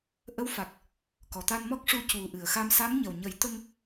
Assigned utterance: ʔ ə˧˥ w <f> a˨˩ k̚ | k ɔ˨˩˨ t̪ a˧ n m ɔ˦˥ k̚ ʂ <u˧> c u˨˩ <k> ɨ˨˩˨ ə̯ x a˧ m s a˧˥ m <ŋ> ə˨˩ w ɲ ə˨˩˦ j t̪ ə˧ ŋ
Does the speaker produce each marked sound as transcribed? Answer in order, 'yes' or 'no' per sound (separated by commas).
yes, yes, no, no